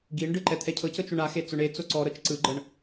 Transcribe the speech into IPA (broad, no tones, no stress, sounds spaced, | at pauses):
ɡ i ɳ ɖ ɯ ǃ ɛ t̪ʰ ɛ cʰ ɤ c ɤ t͡ʃ o ɳ a x e t͡s o ɳ e t͡s o ǀ ɔ ɾ ɤ t͡ʃ ǀ ɯ ɡ͡ǃ ɤ ɳ